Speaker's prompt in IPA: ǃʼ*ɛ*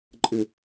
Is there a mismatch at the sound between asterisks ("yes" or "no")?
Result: yes